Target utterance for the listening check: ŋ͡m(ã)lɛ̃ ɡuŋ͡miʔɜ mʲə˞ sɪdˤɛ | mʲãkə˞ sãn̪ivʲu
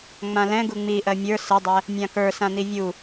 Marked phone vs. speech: correct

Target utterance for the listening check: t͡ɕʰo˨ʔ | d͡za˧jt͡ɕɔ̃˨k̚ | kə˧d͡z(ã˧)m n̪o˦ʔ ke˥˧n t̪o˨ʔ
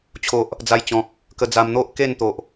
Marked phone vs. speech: incorrect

